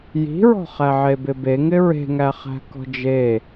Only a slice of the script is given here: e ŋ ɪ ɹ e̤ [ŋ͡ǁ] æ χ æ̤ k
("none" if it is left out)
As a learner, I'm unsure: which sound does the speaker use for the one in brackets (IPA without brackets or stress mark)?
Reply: ŋ